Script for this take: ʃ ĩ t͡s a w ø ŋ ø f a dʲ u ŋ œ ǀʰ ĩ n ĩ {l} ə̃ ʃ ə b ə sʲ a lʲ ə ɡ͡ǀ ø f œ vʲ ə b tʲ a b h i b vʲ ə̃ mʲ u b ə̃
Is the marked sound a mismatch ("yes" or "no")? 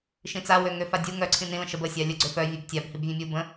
no